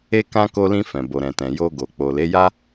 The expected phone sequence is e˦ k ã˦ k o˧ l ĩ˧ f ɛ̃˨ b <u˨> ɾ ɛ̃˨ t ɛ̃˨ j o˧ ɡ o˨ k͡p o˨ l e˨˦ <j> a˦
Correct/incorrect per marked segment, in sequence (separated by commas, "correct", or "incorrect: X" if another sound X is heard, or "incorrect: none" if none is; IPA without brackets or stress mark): incorrect: o˨, correct